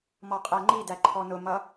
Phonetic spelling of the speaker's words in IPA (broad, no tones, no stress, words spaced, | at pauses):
mɔqʼæŋ͡ǃidæ ǃʰɔnʊmʌ